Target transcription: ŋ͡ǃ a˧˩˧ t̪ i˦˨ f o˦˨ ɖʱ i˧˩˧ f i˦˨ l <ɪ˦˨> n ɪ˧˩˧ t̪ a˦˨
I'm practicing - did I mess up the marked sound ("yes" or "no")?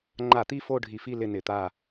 no